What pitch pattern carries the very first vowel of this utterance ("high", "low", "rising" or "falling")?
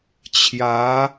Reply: rising